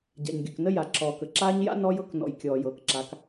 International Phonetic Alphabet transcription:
ɟa̰˨ɲɡʲə˨knə˦ ja˨ǁɔː˨k ə˨ǁaː˦ɲ ja̰˦ nɔ˦j ɤ˦knɔ̰˨j kʲɔː˨jɤː˨kǁa˨˦k

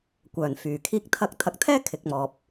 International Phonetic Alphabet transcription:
kʷœː˨˩nfyː˨˩kʰiː˥k̚ t̪ʰɐ˧k̚ t̪ʰɐ˨˥k̚t̪ʰɛː˥ kʰɪ˨k̚mɔː˨p̚

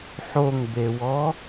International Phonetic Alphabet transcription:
ħoŋbewɔ

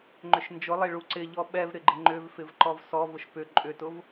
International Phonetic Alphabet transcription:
ŋ͡ǃʏʃnd͡ʒʊlˠe ɭuǀɪʎɔ ɓɛv ɾɪɡ͡ǃɪŋ͡ǃʏvfɪv ǃɔvsɔvʊʃ pʏ ǃʼʏtʊv

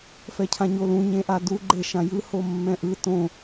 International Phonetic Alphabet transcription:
fɛcʰãɲolũ ɲẽʔadu ɡ͡ǃeʃãjɯ homːɛ̃ʔɯ tõ

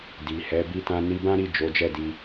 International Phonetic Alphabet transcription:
di˨hɛ˨˦ bi˧tã˧ ni˧bã˦ɾi˦˨ d͡ʒo˨˦d͡ʒɛ˦˨di˧

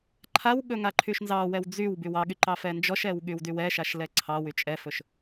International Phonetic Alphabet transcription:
ǃʰawɠɵ ŋaǃʰyʃnzɑwɛw d͡zyw bywɑɠy ǃɑfɛnd͡ʒɔʃɛw ɠywdywɛʃaʃ lɛǀʰɑwy t͡ʃʼɛfɵʃ

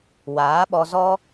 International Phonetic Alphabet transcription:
waː˨˦ɓɔ˧zɔ˦

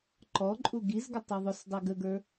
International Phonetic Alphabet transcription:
ǃɔǃʼu ɡizɡə tˤɛðˤʊsdˤi ɡəɡə˞

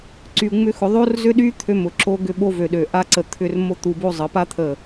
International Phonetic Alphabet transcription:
ǀy˧u̯ŋ͡mʏ˦xʊ˧ ðˤo˦rzʏ˦ɗy˦ t̪ʰø˧mʊ˨ ǁo˧ɡʏ˦˨ɓo˧ vø˨ɗø˨ ʔa˦ǀə˧ t̪ʰʏ˦˨r mo˦t̪u˧bo˦ zˤə˨˦pa˦ t̪ʰə˦˨

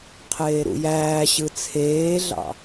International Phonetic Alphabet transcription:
qʰeːɾṵjæːɕɯ t͡sʰeːɮɑ̰

